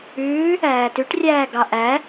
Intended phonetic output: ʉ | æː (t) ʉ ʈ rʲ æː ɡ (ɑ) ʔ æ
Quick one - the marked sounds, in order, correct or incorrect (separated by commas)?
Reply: correct, correct